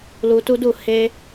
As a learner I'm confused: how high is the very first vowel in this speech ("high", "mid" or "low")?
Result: high